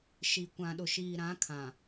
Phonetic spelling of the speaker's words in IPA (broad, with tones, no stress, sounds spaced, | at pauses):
ʃ i˨ kʷ ã˨ ɗ ʊ˨ ʃ iː˨ ɾ ã˨˦ kʰ ã˨